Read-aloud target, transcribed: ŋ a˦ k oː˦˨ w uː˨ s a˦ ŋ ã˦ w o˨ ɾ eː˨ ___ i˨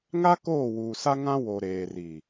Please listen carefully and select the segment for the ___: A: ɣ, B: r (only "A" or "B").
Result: B